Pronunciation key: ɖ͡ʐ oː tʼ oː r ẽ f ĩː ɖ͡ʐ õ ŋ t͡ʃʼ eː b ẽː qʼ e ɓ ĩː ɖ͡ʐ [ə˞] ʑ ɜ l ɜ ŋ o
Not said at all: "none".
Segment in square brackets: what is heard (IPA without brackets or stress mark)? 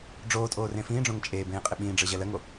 ə˞